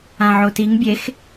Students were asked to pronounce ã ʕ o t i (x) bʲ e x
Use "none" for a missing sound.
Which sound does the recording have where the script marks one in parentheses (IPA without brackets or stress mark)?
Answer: ŋ